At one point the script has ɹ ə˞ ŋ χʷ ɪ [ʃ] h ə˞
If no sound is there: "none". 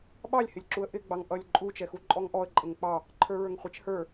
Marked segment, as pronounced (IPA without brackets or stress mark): t͡ʃ